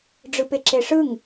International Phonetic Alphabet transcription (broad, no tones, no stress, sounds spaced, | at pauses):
ɖ͡ʐ ɯ p e ǁ e ʂ ɯ ŋ